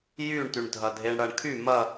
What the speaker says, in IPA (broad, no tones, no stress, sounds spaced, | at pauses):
j y ɳ t y ɳ dʱ ɐ dʱ e ɳ ɽ ɐ ɳ kʰ y m ɐ